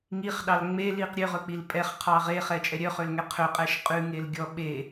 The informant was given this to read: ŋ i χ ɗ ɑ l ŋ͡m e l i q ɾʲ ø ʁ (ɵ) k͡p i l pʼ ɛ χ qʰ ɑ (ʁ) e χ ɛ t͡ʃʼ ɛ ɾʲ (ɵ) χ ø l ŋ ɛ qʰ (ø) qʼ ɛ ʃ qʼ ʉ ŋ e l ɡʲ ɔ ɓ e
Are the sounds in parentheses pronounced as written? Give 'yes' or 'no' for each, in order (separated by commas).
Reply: yes, yes, no, yes